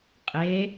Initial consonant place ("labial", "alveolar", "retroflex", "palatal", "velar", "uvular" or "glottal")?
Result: uvular